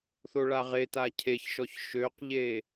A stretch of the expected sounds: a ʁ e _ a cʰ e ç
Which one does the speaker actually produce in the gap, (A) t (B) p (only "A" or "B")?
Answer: A